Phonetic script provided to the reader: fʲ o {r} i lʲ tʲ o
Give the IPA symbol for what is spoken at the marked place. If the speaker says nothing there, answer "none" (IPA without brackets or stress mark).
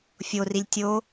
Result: r